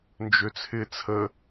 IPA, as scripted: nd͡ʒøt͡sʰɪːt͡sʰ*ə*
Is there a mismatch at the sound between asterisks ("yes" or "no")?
no